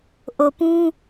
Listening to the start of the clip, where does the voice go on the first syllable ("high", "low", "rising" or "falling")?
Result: low